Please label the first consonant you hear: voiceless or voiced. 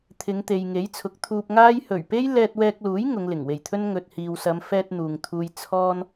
voiceless